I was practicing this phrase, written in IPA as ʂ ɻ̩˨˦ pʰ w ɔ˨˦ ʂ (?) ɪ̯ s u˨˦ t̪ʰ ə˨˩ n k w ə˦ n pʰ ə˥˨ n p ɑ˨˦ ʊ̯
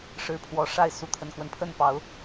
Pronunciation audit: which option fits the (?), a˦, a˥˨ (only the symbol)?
a˥˨